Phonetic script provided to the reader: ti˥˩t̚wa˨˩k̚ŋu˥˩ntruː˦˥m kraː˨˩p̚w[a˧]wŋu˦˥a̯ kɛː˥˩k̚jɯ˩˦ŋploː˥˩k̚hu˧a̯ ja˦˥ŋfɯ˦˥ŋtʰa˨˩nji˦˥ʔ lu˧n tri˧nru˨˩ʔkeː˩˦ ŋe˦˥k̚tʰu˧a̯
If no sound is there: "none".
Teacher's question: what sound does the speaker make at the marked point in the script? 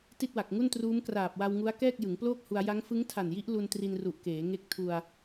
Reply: a˧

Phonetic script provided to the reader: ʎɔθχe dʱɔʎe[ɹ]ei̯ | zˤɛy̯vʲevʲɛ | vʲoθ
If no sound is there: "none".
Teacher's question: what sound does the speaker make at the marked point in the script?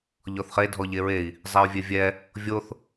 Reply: ɹ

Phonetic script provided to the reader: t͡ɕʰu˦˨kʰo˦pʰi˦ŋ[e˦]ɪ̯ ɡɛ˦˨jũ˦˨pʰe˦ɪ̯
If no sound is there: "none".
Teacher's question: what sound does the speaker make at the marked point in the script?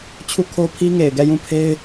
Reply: e˨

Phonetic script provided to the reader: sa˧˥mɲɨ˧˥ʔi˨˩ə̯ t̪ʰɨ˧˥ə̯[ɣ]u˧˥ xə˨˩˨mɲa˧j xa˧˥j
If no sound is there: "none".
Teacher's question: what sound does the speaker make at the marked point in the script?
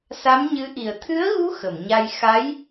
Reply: ɣ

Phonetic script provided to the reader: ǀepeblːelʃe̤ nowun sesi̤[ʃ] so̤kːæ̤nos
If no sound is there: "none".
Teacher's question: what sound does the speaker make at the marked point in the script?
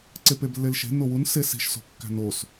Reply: ʃ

